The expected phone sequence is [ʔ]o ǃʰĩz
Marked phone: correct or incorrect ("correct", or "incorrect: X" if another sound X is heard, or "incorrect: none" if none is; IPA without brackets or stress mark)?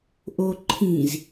correct